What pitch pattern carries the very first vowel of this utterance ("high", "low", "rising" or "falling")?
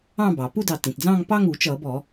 falling